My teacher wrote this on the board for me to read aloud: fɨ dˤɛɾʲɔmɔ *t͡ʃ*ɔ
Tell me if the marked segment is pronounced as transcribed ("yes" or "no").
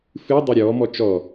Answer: yes